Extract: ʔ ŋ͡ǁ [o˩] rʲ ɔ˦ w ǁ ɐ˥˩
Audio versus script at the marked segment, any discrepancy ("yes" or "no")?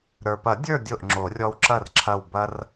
yes